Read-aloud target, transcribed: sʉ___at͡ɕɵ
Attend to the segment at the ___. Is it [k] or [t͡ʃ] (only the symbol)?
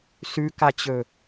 k